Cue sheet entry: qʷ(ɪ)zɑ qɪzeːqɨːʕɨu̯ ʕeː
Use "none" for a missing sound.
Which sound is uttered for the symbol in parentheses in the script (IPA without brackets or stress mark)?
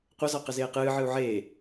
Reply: ə